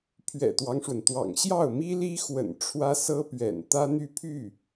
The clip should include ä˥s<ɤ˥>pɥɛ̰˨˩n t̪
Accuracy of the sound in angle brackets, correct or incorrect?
correct